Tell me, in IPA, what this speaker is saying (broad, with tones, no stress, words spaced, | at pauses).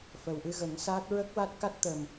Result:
fə˨˩wʔɨ˧ɣə˨˩˦ŋsaː˦˥t̚ ɹə˦˥k̚wa˦˥t̚ ka˦˥t̚t̪ə˨˩m